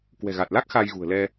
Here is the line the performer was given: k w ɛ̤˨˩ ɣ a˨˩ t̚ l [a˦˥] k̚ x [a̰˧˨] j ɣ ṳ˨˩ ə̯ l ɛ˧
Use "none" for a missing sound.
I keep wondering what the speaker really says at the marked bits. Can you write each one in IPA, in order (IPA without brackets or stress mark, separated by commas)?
a˦˥, a˧